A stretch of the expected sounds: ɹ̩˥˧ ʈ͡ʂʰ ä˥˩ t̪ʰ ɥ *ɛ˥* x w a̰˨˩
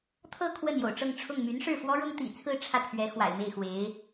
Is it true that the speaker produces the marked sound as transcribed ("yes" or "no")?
no